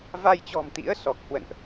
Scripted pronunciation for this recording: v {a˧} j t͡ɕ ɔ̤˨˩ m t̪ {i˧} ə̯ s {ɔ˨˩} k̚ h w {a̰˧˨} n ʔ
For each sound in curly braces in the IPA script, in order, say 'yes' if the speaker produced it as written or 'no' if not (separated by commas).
yes, no, yes, no